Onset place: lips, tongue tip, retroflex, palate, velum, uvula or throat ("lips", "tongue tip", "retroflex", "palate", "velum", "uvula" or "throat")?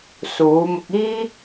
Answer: tongue tip